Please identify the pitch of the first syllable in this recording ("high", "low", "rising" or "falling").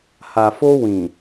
low